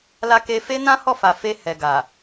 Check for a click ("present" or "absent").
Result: absent